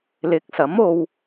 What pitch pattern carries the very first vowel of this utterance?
rising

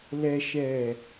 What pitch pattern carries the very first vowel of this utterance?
low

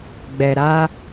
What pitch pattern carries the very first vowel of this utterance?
low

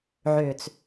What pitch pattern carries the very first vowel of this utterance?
low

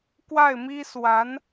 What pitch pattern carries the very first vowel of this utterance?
falling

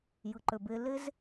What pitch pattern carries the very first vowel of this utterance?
low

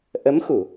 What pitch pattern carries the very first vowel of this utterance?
rising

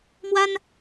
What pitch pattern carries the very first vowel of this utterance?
high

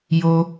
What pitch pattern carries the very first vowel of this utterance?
high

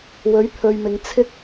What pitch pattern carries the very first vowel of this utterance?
rising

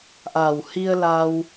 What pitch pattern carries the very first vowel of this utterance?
low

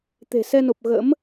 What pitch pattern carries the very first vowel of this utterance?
low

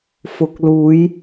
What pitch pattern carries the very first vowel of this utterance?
low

